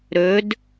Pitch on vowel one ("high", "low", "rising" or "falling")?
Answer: rising